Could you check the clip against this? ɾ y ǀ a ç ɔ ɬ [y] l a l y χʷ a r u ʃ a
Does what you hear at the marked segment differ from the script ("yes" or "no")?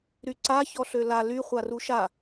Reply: yes